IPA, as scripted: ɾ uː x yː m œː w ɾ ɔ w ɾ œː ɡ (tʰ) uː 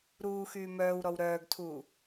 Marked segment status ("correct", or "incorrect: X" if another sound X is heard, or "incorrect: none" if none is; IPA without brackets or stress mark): correct